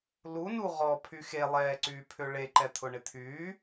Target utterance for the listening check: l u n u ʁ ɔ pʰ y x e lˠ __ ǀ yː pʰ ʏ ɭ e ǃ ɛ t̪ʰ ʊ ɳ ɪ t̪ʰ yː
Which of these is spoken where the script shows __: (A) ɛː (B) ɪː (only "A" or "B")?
A